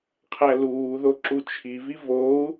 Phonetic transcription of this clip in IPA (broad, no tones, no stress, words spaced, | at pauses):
qʰæluːðo ǁut͡ʃʰivi vou̯